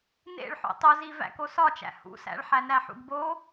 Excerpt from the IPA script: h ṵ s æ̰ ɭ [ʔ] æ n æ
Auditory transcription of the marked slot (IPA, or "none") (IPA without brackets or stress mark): ħ